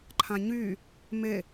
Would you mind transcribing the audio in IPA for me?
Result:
ǃʰãɲy | me

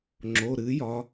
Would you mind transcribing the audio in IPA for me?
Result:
ŋ͡ǁo˩˧˩ɾɨ˨˥ jɒ˨˥

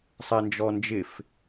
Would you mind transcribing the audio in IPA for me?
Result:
sˤɛnd͡ʒɔnd͡ʒɪf

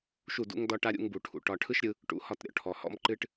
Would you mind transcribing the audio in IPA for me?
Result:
ʃu˦˨dṵ˦ŋdɒ˦ʈa˦ ɾʲṵ˧ŋbu˨ʈʰṵ˨ ʈɒ˧ ʈʰɯ˦ʃɾʲɯ˧ | ʈṵ˧hɒ˧tɾʲɔ̰˨ʈʰɔ˨ hɔ̰˦mǃɨ˦ʈ

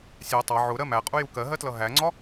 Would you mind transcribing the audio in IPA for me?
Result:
sʲæ tˤɑ ʕʊɾɜ mæqʼuju kɜɦɜtlʌ ɦæŋ͡ǀɒ

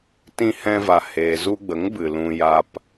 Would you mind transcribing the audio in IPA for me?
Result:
tĩ˧hɛ̃˧va˨ heː˨zu˧ɡ͡bə˨˦ŋbɨ˨ lũ˧ ja˧p

